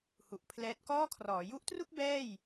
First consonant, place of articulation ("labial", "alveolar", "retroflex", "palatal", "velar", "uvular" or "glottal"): glottal